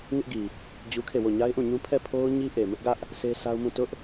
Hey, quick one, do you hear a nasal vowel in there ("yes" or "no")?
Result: yes